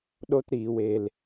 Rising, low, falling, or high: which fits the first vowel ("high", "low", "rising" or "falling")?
high